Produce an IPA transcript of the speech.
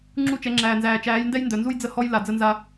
ŋ͡ǁ u˦˨ t͡ʃ ɛ˨˦ ŋ͡ǁ æː˨ n z æː˨ t͡ʃ æː˨˦ j n d ɛ˦ j n d œ˨ n z u˦ j d͡z ə˦ h ɔ˦ j l a˨ d͡z ə˦ n z a˦

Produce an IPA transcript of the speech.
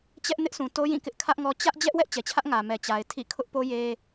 t͡ɕ ɛ˦ ʔ n ɪ˦ ʔ s ũ˨ t o˦ j ĩ˦˨ k ɪ˦ ʔ kʰ ä˦ ʔ ŋ ɔ˦ t͡ɕ ä˦ ʔ d͡ʑ ɛ˦ ʔ w ɛ˦ ʔ t͡ɕ ɛ˨ t͡ɕʰ ä˦ ʔ ŋ ä˨ m ɛ˨ t͡ɕ a˨ ɪ̯ tʰ ḭ˦˨ kʰ ʊ˦ ʔ p o˦ j e˦

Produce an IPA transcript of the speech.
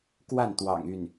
k w a˥˩ n t̪ w ɑ̰˨˩ ŋ y˥˩ n

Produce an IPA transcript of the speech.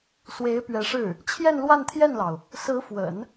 s w e˧˥ ɪ̯ p ɥ ɛ˧˥ ʂ ɻ̩˥˩ | t͡ɕʰ j ɛ˥˧ n l w a˥˧ n t̪ʰ j ɛ˥˩ n l ɑ˩ ʊ̯ | s ɹ̩˧˥ f w ə̰˨˩˦ n

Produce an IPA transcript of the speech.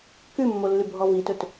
k ʉ mː o lː ʉ bʱ ɔ v i t ɵ t

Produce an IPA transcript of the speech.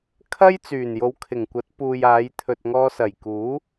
kʰ ɐ˥ j t͡s yː˨˩ n j o˨˧ w kʰ ɪ˨˩ ŋ kʷ ɐ˨˥ t̚ p uː˨ j aː˨˧ j t̪ʰ ɵ˨ t̚ ŋ ɔː˧ s ɐ˨˩ j k uː˨˥

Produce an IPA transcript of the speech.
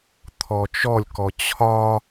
t̪ʰ ɔ t͡ʃ ɔ lʲ k ɔ t͡ɕʰ ɒ

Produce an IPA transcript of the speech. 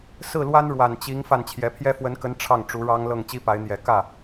s ɹ̩˥˩ l w a˥ n ɻ w a˨˩ n t͡ɕ i˧˥ ŋ f a˥˩ n t͡ɕʰ j ɛ˧˥ pʰ j ɛ˥ f w ə˧˥ n k ə˧˥ n ʈ͡ʂʰ ɑ˥˩ ŋ ʈ͡ʂ u˧˥ ɻ ɑ˥ ŋ l ɤ˥˩ ŋ t͡ɕ i˥ p a˧˥ ɪ̯ n̪ j ɛ˨˩ k ä˥˩

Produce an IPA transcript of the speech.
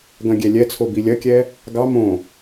ɡ ɐ̃ ɡʲ ɛ lʲ ɛ t͡sʰ o b i lʲ ɐ kʲ ɛ | ɡ ɑ m õ

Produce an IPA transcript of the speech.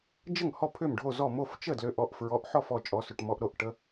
d͡ʒ ə˥˩ ŋ h ɔ˥˩ pʰ ʏ˥˩ m ɖʱ o˥˩ z ɔ˥˩ m o˥˩ f t͡ʃ ə˥˩ d l ʏ˩˧˩ ʔ ɔ˩˧˩ ʔ f ɹ ɔ˩˧˩ ʔ ħ ɔ˥˩ f ɔ˥˩ t͡ʃʼ ɔ˩˧˩ s ʏ˩˧˩ ʈ m ɔ˩˧˩ ʔ ɾ o˥˩ ʔ ʈ ə˩˧˩

